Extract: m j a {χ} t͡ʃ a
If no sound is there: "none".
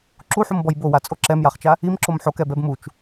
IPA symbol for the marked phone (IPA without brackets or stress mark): χ